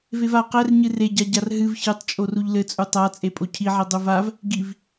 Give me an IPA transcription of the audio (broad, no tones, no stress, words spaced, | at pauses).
veva qɛrɲɨ reɟaɟar ɦɨv çɨtˤt͡ʃʼor uʎlɘt͡sʼu tˤat͡sʼe pʼocʰiʕi dˤuvav | ɡiv